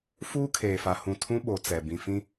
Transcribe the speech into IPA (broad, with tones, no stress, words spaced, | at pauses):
fuː˦ kʰeː˨fa˨hũ˨ tʰũ˦ɓo˨ t͡sɛ˨ bĩ˨fĩ˦